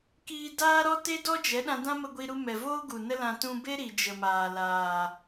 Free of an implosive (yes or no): no